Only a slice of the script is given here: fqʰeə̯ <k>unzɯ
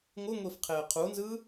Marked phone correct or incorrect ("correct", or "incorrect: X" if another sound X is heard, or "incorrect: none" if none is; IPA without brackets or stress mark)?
incorrect: qʰ